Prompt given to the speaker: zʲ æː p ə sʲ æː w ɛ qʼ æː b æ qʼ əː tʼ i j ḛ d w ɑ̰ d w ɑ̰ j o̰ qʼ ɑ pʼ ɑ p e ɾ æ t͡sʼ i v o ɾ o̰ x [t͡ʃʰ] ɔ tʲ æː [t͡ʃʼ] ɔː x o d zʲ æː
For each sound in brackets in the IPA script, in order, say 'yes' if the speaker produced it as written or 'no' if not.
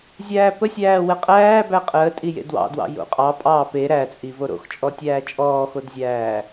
no, yes

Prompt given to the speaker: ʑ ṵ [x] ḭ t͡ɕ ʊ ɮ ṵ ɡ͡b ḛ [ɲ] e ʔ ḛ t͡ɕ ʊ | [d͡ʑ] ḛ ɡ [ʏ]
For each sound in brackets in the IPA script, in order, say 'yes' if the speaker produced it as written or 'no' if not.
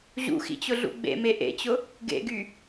yes, no, no, no

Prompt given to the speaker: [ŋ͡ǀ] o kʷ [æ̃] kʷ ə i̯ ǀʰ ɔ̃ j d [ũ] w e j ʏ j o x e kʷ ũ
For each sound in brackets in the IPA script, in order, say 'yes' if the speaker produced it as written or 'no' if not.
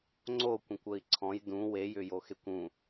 yes, no, yes

